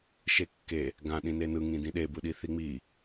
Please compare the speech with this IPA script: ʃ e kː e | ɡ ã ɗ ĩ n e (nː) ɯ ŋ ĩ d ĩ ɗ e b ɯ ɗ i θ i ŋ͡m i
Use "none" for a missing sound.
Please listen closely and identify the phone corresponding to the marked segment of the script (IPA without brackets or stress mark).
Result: n